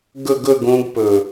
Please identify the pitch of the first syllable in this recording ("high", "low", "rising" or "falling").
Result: falling